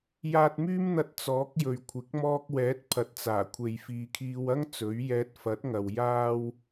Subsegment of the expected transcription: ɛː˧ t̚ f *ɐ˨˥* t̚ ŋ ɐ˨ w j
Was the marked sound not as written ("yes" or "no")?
no